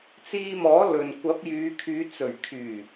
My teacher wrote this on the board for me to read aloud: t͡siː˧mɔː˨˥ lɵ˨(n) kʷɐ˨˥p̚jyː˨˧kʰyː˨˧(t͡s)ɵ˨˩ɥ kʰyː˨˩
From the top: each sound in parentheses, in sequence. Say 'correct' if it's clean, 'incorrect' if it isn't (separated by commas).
correct, correct